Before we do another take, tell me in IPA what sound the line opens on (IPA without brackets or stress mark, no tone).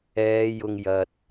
ɛː